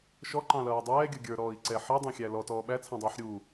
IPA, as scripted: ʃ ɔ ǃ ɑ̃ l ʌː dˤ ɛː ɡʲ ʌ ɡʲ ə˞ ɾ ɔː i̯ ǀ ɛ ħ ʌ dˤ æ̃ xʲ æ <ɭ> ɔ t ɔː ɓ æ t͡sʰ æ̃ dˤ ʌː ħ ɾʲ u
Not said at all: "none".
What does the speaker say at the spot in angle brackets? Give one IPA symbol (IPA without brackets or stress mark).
l